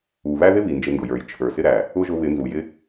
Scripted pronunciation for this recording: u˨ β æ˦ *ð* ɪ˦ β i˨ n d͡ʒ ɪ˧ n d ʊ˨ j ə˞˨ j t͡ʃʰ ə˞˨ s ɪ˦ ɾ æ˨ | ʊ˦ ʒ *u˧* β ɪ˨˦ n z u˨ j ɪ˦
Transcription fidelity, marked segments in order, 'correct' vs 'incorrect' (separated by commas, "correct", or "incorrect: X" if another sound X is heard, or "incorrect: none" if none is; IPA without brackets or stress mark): correct, incorrect: ʊ˧